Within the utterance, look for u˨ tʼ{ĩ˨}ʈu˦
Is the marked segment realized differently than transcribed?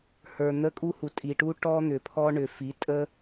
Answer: yes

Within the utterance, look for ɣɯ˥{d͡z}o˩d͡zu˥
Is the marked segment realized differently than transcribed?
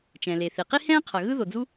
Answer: yes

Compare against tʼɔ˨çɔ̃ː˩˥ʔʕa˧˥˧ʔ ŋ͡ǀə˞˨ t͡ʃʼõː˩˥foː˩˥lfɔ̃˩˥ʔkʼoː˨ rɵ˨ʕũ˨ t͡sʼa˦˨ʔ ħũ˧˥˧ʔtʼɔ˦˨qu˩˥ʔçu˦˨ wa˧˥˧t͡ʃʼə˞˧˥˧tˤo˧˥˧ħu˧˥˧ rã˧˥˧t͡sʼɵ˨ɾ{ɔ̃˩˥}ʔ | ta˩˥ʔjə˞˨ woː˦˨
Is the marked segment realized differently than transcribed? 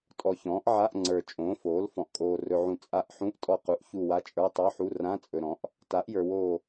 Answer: no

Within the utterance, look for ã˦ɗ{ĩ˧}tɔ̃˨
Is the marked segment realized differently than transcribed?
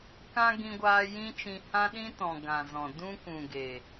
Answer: yes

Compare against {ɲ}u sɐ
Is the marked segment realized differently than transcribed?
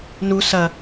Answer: yes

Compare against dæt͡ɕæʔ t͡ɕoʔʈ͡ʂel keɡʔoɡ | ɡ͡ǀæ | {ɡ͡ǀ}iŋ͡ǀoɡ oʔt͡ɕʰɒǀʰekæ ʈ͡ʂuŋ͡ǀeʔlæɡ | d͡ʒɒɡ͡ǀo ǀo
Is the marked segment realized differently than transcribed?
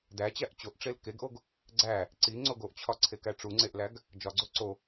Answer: yes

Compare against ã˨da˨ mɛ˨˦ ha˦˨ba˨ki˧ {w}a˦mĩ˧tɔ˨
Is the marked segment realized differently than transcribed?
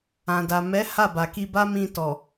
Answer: yes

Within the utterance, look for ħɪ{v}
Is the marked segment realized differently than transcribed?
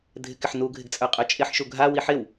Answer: yes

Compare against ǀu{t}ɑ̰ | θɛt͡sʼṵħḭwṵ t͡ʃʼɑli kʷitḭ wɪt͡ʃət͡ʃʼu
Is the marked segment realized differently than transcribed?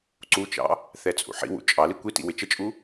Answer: yes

